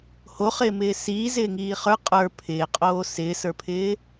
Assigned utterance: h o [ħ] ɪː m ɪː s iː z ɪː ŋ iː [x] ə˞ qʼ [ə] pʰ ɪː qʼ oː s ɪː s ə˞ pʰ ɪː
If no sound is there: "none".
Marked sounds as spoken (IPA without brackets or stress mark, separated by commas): χ, χ, ə˞